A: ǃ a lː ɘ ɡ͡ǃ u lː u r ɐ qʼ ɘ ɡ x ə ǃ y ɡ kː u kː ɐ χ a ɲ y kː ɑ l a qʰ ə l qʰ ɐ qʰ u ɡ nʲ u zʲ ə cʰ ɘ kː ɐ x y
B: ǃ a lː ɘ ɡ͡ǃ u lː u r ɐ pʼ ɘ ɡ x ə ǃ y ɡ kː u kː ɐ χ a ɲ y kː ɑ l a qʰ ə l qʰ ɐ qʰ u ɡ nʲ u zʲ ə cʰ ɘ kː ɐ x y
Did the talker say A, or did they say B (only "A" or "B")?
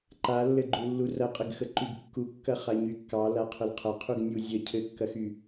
A